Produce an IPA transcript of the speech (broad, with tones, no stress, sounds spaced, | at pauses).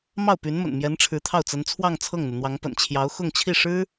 m ɑ˥˩ ʊ̯ p y˧˥ n m ə̰˨˩ n m j ɛ˧˥ n ʈ͡ʂʰ ɻ̩˧˥ t̪ʰ ɑ˥˩ ʊ̯ t͡s ə˧˥ n t͡sʰ w ɑ˥˧ ŋ t͡sʰ ɤ˥˩ ŋ n̪ u˩ n̪ w ɑ˧˥ ŋ p ə̰˨˩ n t͡ɕʰ j ɑ˧˥ ʊ̯ x ʊ˥˧ ŋ t͡ɕʰ i˥˩ ʂ ɻ̩˥